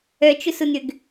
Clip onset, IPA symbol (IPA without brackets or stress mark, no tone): œ